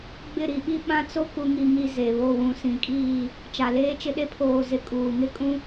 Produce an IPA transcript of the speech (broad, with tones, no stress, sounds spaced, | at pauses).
ɡ͡b ɪ˦˨ ɾ i˨ ɓ i˦ ɓ ã˦ t͡s o˦ k u˨ ŋ i˨ ŋ i˨ z e˨ β o˦˨ w ũ˨ s ĩ˨ kʼ iː˦˨ | t͡ʃ a˨ l eː˦ t͡ʃ ɪ˦ ɗ e˦ pʰ oː˨ z ɪ˨ kʼ uː˨ ŋ ɪ˦ kʼ ũ˦